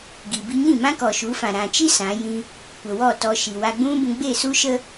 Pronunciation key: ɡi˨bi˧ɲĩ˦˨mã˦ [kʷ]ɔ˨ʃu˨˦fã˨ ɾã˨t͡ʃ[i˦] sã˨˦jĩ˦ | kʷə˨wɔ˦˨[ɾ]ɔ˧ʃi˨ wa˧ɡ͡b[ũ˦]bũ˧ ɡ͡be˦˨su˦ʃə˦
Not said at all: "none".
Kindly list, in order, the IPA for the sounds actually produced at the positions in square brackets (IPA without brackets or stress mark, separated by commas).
k, i˦, t, ũ˦